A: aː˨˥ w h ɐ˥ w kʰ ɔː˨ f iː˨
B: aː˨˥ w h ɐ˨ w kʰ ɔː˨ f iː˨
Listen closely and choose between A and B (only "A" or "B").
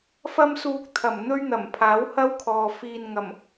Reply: A